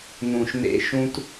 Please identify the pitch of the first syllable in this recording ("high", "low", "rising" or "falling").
low